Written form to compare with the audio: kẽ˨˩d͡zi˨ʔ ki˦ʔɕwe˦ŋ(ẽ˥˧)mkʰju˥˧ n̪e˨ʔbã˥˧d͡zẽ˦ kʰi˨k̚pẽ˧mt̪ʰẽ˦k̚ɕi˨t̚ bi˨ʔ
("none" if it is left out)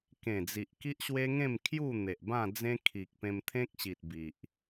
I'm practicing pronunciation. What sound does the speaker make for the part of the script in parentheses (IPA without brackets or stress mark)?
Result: ẽ˥˧